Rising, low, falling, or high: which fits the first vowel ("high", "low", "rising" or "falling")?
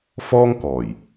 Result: high